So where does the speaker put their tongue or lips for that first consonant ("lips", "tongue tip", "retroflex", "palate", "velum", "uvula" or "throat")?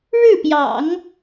retroflex